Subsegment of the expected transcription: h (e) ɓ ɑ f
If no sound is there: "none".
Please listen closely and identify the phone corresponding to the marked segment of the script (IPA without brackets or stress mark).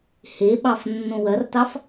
e